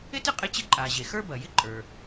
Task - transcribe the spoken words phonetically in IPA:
ɪ˥tɪ˥ qʼɪ˥t͡ɕɪ˥ ǃʼa˩ ʑe˩ xə˞˥bɐ˩jɪ˥ǃʼə˞˩

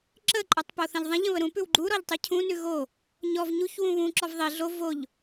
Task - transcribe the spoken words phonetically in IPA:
ǁə ǃʼotˤpoθə̃ʎðˤə̃ʎ ə̃βəɾũpʉw ɡ͡ǃuɾɔʎtˤʉ cʰũnʉ ɣo | ɲɔv ɲuç wũβũ ǁɔvðˤi ɮo voʎ

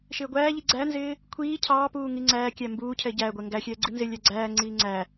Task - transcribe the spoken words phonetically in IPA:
ʃɪːɡʷæːʎi ɡ͡ǀænzɪː | kʷʰiː cʰɑːpuː ŋiŋ͡ǀæːkʲæ mbuːcʰɛ ɟæːɡʷɛ ŋɡæxʲɛː ɡ͡ǀinzɪlʲæ ɡ͡ǀæːŋ͡ǀiː ŋ͡ǀæ

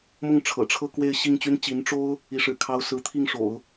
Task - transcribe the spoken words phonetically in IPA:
mʊ˥˩ŋʈ͡ʂʰɤ̰˨˩ʈ͡ʂʰɤ˥˧ kwe˥˧ɪ̯ ɕi˥˩ŋt͡ɕy˥nt͡ɕi˧˥n ʈ͡ʂo˥ʊ̯ | i˧˥ʂɻ̩˨˩kʰɑ˥ʊ̯ sɹ̩˧˥t̪ʰi˥˩ŋʂo̰˨˩˦ʊ̯

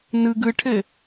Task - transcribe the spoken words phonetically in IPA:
nɯɡ ɯʈʰɘ

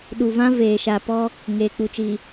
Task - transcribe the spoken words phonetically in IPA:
ɗu˨vã˦ veː˨ʃa˨pɔ˦ | ŋeː˨k͡pu˨t͡ʃi˨

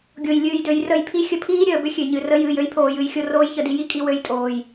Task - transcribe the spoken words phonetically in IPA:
ɡʲo˨j lʲɨː˨jdø˨j rə˦˨jpʰi˦ xʲə˧pʰiː˦ɾʲəː˨bʏ˦ xʲø˨ɲɨ˨rə˦ jɨː˨jø˦jpʰoː˨j ɨ˧jxʲo˧ roː˦jçə˧di˧ ji˦kʼi˧ wø˧jtʼoː˨j

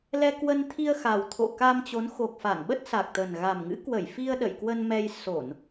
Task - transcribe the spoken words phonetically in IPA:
lɛ˧kwə˧nt̪ʰi˧ə̯xa˨˩w t̪ʰo̰˧˨ka˧mt͡ɕo˨˦n xo˨˩k̚ fa˧˩ŋɓə˦˥t̚ sa˨˩k̚t̪ə˨˩n ɣa˨˩mŋɨ̰˧˥kwə˧˩jfi˧ə̯ ɗə̰˧˨jkwə˧nmɛ˧j so˧˩˨n

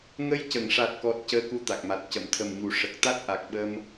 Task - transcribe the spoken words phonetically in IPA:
ŋə˧jcə˨˩˨ŋʂa˨˩t̚kɔ˨˩t̚ cəː˧ku˧t̪a˨˩k̚ma˨˩t̚ cə˨˩˨mt̪ʰə˨˩mɲu˨˩˦ ʂə˨˩k̚t̪a˦˥t̚ʔa˨˩k̚ ɓə˧m

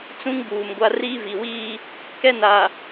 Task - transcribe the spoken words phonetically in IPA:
t͡sũ˦ŋbuː˨m ɡʷa˦ riː˦vi˨wiː˦ | kɛ˦na˨

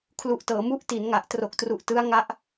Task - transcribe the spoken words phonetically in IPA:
kʰlu˨˩ʔtɤː˩˦ mu˦˥ʔti˩˦nŋa˨˩ʔ tro˨˩k̚tru˨˩ʔ tɯ˦˥a̯ŋa˦˥ʔ

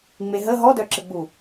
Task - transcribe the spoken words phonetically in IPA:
ŋ͡meɦə ɦɔdœǁəɡ͡bu

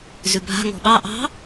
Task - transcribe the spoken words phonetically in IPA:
zʉbʱa̤ ŋɔ̤ɓɑ ʔɑ̤

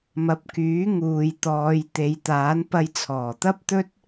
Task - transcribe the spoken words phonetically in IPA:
mɐ˨˥p̚kyː˨˥ ŋuː˨jt̪ɔː˨˧j t̪e˨˧jt̪aː˨˥n pɐ˧jt͡sʰɔː˨˩t̪ɐ˥p̚ t̪ɵ˥t̚

